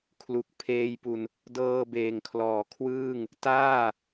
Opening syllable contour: low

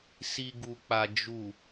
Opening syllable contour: low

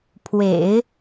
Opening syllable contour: low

